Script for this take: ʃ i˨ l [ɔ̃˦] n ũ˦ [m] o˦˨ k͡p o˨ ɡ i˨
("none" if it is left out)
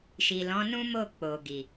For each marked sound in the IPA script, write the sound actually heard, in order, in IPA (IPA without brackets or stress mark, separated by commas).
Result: ɔ̃˨˦, m